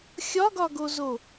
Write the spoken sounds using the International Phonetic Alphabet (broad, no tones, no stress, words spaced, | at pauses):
xʲɒɡɒɡozo